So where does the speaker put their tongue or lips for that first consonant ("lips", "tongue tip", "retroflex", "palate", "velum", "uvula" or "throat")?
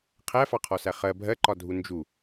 uvula